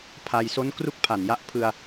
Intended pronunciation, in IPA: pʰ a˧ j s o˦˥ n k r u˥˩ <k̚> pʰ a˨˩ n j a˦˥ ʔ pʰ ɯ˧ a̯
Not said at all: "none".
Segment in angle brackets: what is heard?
k̚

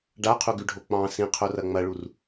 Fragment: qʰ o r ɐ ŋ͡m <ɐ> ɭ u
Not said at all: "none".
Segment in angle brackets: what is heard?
ɐ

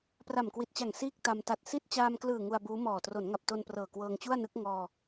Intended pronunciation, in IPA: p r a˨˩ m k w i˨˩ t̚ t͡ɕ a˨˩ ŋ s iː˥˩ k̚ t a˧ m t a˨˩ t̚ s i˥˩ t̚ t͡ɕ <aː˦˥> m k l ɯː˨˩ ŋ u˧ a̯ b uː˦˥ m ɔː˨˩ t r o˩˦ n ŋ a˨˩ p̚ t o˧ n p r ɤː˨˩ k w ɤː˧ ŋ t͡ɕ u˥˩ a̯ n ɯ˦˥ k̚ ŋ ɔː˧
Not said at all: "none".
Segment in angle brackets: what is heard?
aː˧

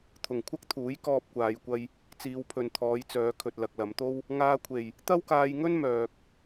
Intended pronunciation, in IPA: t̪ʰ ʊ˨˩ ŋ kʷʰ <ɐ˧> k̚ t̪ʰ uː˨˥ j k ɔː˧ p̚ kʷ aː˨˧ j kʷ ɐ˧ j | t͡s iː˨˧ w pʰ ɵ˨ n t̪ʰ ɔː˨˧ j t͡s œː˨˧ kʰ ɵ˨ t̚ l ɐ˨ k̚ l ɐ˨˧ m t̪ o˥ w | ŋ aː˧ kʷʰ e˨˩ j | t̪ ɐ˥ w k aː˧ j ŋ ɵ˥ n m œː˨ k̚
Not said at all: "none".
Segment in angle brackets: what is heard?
ɐ˥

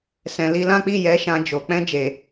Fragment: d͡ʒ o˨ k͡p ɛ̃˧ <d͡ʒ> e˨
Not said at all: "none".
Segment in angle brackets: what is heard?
d͡ʒ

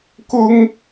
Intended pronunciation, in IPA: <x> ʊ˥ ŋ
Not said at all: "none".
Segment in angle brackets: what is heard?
k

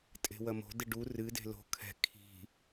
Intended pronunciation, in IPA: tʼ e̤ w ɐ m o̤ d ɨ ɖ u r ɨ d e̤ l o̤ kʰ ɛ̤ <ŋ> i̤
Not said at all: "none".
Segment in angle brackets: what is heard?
kʰ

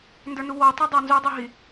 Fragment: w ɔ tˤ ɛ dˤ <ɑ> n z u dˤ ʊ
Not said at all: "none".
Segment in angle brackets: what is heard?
ɑ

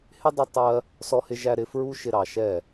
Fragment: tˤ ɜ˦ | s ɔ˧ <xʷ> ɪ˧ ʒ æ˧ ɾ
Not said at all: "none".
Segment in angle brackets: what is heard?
h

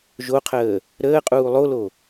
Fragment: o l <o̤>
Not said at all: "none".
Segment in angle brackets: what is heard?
o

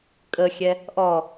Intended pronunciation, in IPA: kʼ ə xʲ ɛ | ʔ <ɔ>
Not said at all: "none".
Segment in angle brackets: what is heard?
ɔ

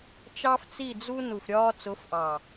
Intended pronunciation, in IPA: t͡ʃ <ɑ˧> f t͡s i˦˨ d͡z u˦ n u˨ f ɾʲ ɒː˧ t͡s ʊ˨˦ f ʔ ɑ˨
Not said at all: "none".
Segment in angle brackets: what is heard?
ɑ˦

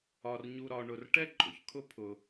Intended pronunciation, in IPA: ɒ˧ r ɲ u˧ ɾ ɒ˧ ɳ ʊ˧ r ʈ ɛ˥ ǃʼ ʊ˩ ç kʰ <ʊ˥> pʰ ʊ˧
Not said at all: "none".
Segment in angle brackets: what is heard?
ʊ˥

